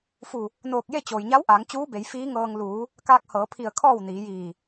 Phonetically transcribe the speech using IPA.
f u˧˩ | n oː˧˩ k̚ j e˥˨ t͡ɕ oː˩ j ɲ a˧˥ w ʔ aː˩˧ ŋ t͡ɕ uː˧˥ b e˩˧ j f iː˧˥ ŋ ɤː˧ ŋ l uː˩˧ | k aː˧ k̚ h ɤː˩˧ pʰ i˧˩ ə̯ kʰ ɔː˥˨ w n iː˩˧ j iː˧˩

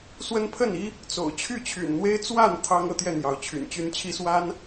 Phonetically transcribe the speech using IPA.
s w ə˦ n pʰ ə˥˨ n i˦ | t͡s o̰˨˩ ʊ̯ t͡ɕʰ y˥˨ t͡ɕʰ y̰˨˩ n n̪ w e˦ ɪ̯ t͡s w a˥˨ n t̪ʰ ɑ˦ ŋ ɤ˥˨ t̪ j ɛ˥˨ n̪ j ɑ˨˦ ʊ̯ t͡ɕʰ y̰˨˩ n t͡ɕ y˦ n t͡ɕʰ i˦ s w a˦ n

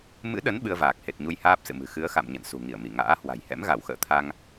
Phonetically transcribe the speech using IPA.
m ɨ̰˧˥ ɗ ə˨˦ n ɓ ɨ˧ ə̯ v aː˨˩ k̚ h e˨˩ t̚ ɲ u˧ j h aː˦˥ p̚ s ɨ̰˧˨ m ɨ̤˨˩ x ɨ˨˦ ə̯ x a̰˧˨ m ɲ ə̰˧˨ n s ṳ˨˩ ŋ i˧˩ ə̯ m i˧˩ ŋ a̰ː˧˥ h w a̤˨˩ j h ɛ̰˧˥ m ɣ a˧˩ w x ə̰ː˧˨ t̪ʰ a˧ ŋ

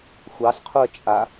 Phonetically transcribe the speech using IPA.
xʷ ɑ s qʰ u ə̯ t͡ʃʼ a

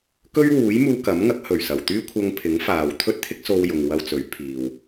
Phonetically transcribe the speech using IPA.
k ɵ˥ ɥ w uː˨˥ j m uː˧ k ɐ˨˥ m ŋ ɐ˨˥ k̚ h ɵ˨˩ ɥ s ɐ˨˩ w t̪ yː˥ kʷʰ ɐ˧ ŋ pʰ ɪ˨˥ ŋ f aː˨ w t̪ʰ ɵ˥ t̚ t̪ʰ ɪ˥ k̚ s o˧ w j ʊ˨ ŋ w ɐ˧ w t͡s ɵ˨˥ ɥ pʰ iː˨ w

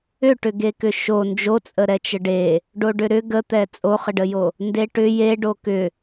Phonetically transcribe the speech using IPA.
ʏ ʈ ʏ ɡ e k ʏ ʃ o n d͡ʒ o t͡sʼ ə ɾ ɛ t͡ʃ ə ɖ e | ɖ o ɖ ʏ ɾ ʏ ɡ ə t̪ ɛ t͡sʼ o χ ə ɖ ə j o | n d e ʈ ʏ j e ɖ o k ʏ

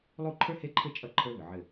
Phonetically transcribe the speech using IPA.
lˠ u˥˧ ǃʰ ə˞˥ h e˥˧ ǃʰ ɘ˥˧ t͡ʃʼ ʌ˥ ǃʰ ə˞˥ β ʏ˨ ʕ ɘ˥˧

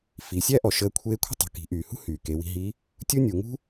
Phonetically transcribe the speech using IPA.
f i˩˧ sʲ æ˥ ʔ ɔ˩ ʃ əː˧ kʷʰ eː˧˥ kʷʰ ə̤˥ tˤ ṳ˩ k i̤˩˧ ʔ yː˩ h ṳ˥ h yː˩ k e˩˧ w i̤˧ ɦ i˧˥ | tʲ u˥ nʲ u˩˧ ŋ ṳ˥

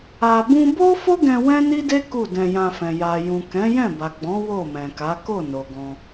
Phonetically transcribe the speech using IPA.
a˧ b ũ˦ b o˦ f o˦ ɡ ɛ̃˧ w ɛ̃˦ n i˦ d e˦ k u˦˨ d ɛ̃˧ j ã˧ f ɛ̃˨ j a˨ j ũ˨ k ɛ̃˨˦ j ɛ̃˦˨ b a˨ ɡ͡b ɔ̃˨˦ w o˦˨ m ɛ̃˨ k a˨˦ k o˦˨ n o˨ ɡ ɔ̃˧

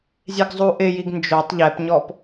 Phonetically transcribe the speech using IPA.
zʲ e ɡ zˤ u ʔ ɪ j i ɡ n d͡ʒ o tˤ ʎ ɛ p ɲ ɔ p

